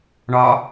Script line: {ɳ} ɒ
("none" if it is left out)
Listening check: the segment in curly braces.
ɳ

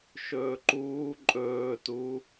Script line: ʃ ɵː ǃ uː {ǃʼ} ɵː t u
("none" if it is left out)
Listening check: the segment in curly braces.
ǃʼ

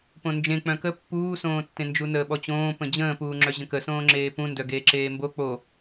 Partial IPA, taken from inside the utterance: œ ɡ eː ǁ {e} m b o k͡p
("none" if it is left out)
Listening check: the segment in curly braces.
eː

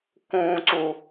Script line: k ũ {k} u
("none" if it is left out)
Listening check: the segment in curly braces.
ǀ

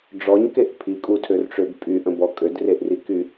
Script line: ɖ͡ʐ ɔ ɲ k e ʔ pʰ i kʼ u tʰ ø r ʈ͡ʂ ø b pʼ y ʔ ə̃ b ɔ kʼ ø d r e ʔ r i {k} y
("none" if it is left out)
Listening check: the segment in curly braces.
k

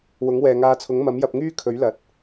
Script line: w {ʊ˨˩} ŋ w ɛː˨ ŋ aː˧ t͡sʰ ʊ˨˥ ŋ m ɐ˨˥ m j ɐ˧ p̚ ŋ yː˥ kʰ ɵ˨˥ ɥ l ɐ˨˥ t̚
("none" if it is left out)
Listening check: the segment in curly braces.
ʊ˨˥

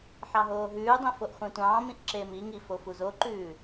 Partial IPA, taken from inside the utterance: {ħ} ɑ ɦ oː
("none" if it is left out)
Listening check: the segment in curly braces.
ħ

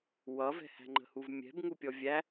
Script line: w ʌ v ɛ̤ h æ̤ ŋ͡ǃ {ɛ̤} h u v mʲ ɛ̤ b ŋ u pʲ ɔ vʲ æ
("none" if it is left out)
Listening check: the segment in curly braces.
ə̤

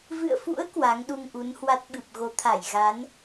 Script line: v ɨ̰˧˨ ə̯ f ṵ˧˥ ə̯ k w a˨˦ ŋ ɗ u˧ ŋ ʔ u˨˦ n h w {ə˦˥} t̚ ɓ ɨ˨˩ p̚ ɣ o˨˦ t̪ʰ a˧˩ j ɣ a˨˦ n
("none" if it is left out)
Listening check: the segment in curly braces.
a˦˥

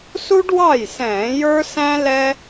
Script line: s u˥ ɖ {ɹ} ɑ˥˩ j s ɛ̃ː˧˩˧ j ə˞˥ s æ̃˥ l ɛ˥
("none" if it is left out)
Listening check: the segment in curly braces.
w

